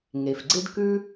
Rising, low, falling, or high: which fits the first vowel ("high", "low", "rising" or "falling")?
low